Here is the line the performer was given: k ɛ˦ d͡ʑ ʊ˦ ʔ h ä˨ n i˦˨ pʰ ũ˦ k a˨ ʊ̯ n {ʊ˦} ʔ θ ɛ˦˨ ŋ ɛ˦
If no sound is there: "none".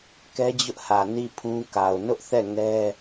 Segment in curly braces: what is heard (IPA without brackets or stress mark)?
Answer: ʊ˦